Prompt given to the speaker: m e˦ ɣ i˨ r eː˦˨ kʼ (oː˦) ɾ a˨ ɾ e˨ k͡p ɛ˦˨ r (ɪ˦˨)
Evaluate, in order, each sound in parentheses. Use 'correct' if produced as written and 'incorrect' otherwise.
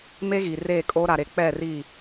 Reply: correct, incorrect

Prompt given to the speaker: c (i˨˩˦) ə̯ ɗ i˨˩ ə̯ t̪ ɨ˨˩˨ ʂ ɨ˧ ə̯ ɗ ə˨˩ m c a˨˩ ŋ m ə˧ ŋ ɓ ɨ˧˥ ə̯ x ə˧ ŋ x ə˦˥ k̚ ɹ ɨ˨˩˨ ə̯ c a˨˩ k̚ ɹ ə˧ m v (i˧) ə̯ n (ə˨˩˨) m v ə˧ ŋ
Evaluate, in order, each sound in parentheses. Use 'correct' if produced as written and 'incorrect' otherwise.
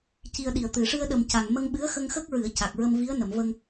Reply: incorrect, incorrect, correct

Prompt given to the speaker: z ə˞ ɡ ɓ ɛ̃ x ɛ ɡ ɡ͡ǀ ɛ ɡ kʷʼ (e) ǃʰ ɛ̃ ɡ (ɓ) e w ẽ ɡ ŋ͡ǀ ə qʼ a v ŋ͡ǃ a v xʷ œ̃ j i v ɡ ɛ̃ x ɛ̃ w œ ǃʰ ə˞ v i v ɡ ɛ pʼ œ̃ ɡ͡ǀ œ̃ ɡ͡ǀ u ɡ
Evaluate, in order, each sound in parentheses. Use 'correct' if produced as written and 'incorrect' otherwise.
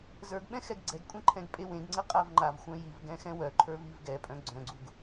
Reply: incorrect, incorrect

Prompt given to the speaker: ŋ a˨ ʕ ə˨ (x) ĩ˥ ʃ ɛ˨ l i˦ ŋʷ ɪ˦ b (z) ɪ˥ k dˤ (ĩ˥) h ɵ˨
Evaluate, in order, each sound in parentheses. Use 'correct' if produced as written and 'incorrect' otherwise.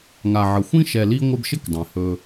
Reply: incorrect, incorrect, incorrect

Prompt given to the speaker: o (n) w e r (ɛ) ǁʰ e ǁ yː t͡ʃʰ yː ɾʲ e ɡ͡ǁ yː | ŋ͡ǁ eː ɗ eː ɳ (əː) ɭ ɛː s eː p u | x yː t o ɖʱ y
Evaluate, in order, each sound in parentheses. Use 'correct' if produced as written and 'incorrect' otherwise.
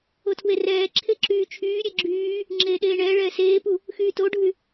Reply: incorrect, incorrect, incorrect

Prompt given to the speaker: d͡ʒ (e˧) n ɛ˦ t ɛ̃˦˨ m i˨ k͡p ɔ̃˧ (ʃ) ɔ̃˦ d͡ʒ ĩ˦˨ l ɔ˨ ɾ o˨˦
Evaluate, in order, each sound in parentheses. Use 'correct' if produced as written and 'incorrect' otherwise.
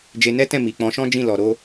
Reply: correct, correct

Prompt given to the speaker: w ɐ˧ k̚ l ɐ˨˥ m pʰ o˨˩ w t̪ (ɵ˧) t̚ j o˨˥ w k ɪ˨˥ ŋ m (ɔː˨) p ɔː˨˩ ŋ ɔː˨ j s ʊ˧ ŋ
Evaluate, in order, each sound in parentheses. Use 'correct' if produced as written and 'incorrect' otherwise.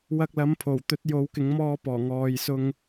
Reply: incorrect, incorrect

